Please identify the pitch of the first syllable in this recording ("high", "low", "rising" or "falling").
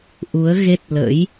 rising